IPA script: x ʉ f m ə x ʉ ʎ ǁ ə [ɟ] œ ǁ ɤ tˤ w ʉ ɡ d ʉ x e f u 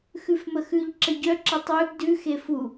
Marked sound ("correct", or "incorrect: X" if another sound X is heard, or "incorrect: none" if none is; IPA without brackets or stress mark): correct